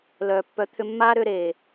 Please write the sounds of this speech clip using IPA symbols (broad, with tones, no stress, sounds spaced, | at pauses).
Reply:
l œː˨ pː œ˨˦ t̪ʰ ʏ˧ mː aː˦ ɾ ʏː˧ ɾ eː˨